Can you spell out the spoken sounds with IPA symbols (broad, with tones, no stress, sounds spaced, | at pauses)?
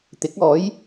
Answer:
t̪ ɪ˨˥ k̚ ɔː˨˥ j